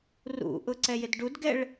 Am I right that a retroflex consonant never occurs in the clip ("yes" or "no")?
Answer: no